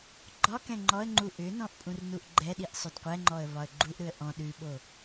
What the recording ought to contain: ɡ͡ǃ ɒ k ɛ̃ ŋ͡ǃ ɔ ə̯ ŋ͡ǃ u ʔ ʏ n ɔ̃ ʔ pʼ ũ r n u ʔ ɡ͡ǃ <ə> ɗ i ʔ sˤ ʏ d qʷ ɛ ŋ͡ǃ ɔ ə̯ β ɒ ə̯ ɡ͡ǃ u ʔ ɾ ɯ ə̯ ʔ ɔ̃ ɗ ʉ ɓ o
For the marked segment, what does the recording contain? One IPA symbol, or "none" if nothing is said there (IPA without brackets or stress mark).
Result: ɛ